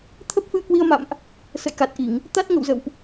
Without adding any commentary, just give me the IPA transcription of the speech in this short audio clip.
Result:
t̪ʰə˦˥p̚fɨ˧ə̯kwi˧ə̯ma̰˧˨mʔ | sə̰˧˨jka˨˩t̚ʔi˧˩˨ŋ | t̪a˦˥t̚ŋə̰˧˨wzə̰˧˨wʔ

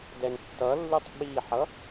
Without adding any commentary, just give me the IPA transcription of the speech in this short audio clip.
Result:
dɛntːʌlːɨtˤ ɓiħʌ

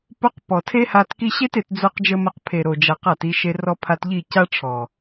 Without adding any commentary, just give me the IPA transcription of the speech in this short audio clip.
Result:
po˦q pɔ˨tʰe˦ha˧t ki˧ɕe˦t e˨˦td͡zo˦qd͡ʒə˦mə˦˨q pʰe˨ɾo˨d͡ʒa˨q a˦˨ti˧ʃe˧ rɔ˧pʰa˧tʎi˦˨ ca˦ʈ͡ʂʰɔ˨

